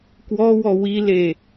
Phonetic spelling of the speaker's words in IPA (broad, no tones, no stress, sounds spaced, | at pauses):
k w ɔ w ɔ w i l e